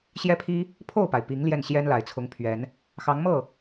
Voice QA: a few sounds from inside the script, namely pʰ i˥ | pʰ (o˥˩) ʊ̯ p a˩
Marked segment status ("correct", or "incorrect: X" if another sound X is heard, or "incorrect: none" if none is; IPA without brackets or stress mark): correct